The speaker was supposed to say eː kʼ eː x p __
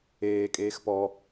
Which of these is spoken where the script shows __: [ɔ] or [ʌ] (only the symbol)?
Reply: ɔ